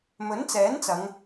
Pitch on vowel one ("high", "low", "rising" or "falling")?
rising